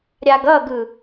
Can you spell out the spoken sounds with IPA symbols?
ɾʲ a ɡ ʌ ɡ ɯ

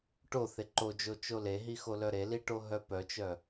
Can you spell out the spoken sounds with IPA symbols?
ʈ o θ e ǃ o d͡ʒ o t͡ʃ o l e ɦ i x o l œ ɾ e l i ʈ o ɦ œ p œ t͡ʃ œ

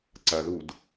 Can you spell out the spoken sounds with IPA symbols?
ǀ ɐ ð u d

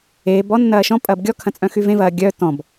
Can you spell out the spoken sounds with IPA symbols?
eː b ɔ nː ɐː ʃ ɔ̃ pʼ ɐː b ɡʲ ɔ kʰ ɐ̃ t͡sʼ œ̃ x y v ẽ v ɐː ɡʲ œ t ɔ̃ b

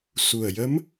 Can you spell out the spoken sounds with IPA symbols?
s u˨˩ ə̯ j ə˧˥ m

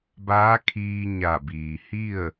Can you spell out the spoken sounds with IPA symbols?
b aː˧˥ kʰ iː˧ ɲ a˧˩ b iː˩ h i˥˨ ə̯

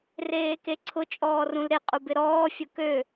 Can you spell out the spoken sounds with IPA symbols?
r eː k e ǀʰ ʊ t͡ʃʼ ɔː r ũ l ɾ ɪ qʼ u b ɪ ɾ ɔː fʲ ʊ k ø

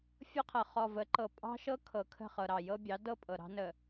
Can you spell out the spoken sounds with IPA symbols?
fʲ ɤ˦ qʰ ɤ˨ χ ɔ˨ v ə˨˦ ǃ ɤ˨ pʼ ɑ̤˦ ʃ ɤ˦ kʰ ɤ˨ kʰ ə̤˦˨ χ ɤ˨ ɾ ɑ˨ j ɤ˦ bʲ ɑ˨˦ d ɤ˦ pʼ ɤ˨ ɾ ɑ̤˦ n ə˨

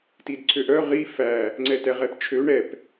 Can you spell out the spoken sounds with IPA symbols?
t i d ǀʰ ø ʔ œ ʁ i f æ | ŋ͡ǀ ɛ t ɛ ʁ ɛ p t͡ʃʰ ø ɳ ɛ p

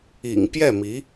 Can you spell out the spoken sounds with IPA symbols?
ḭ˨˩ ŋ p j ɛ˥˩ m i˧˥

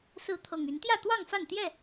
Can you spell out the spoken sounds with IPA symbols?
s ɹ̩˨˦ t̪ʰ ɤ˨˩ ŋ y˨˦ n t̪ j ä˥˨ t̪ w ɑ˥˨ ŋ f a˥˨ n t̪ j ɛ˥˨

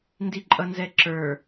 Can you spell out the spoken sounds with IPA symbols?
n d i ǃʼ ʌ n z ɛ ǁ ə˞

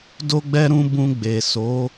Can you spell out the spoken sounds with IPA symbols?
d o˦ ɡ͡b ɛ˦ ɾ ũ˧ b ũ˧ ɡ͡b e˨ s o˨˦

